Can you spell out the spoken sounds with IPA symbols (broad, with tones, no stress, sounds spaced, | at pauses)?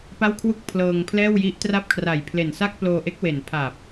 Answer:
p a˥˩ w kʰ w u˥˩ k̚ pʰ l ɤː˧ ŋ pʰ l ɛː˥˩ w j i˦˥ ʔ t r a˥˩ p̚ kʰ r a˨˩ j pʰ l e˨˩ n s a˥˩ k̚ p l oː˧ ʔ e˦˥ k̚ w e˨˩ n pʰ a˨˩ p̚